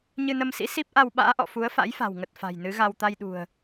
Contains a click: no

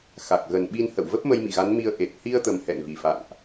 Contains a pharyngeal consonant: no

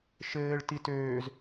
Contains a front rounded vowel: yes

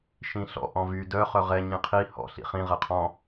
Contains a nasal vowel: yes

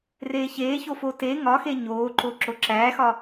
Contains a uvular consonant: no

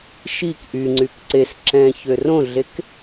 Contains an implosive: no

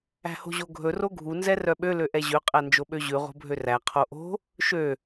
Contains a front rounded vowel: yes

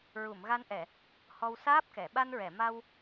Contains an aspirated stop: no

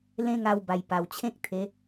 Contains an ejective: no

